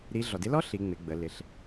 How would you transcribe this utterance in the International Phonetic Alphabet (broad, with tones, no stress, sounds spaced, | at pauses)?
ɾ i˧˥ ɮ ɔ˩ d ɪ˧˥ l ɔ˥ ɬ i˩˧ ŋ͡m ɪ˩˧ ɡ͡b ə˩˧ l ɪ˩˧ ɬ